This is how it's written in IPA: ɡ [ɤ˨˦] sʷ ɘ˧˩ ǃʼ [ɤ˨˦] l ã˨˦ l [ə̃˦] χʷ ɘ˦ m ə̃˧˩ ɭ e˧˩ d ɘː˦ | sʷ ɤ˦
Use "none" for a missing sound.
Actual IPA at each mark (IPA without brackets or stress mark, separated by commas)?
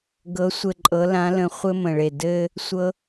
ɤ˨˦, ɤ˨˦, ə̃˧˩